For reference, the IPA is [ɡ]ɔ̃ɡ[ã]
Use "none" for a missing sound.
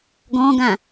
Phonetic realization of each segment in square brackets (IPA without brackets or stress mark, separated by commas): ɡ, ã